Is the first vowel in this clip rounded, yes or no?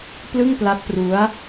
no